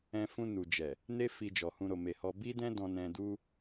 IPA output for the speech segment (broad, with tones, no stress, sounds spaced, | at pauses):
ɛ̃˧ f ũ˧ n u˨ d͡ʒ ɛ˨ | n e˦ f i˧ d͡ʒ ɔ˨ h ũ˨ ɾ o˨ m e˨ h ɔ˧ b i˦ d ɛ̃˦ d ɔ̃˧ n ɛ̃˧ d u˦